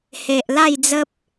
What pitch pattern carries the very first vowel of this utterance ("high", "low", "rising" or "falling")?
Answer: low